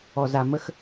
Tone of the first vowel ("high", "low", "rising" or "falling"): low